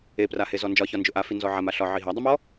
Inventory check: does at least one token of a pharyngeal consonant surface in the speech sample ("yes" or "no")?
yes